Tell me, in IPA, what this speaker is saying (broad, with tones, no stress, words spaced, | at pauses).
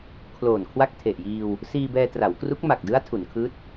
kʰloː˨˩nkʰwa˥˩k̚tʰe˨˩ʔjiː˧w | siː˧bɛː˧tra˩˦wkru˦˥k̚ ma˨˩k̚dɯ˦˥a̯ tʰu˩˦nkʰɯː˦˥t̚